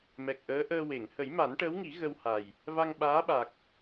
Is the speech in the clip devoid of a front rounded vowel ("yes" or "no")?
yes